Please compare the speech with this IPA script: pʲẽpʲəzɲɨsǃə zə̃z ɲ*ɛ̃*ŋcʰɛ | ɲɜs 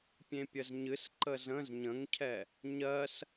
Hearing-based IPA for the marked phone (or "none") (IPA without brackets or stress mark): ə̃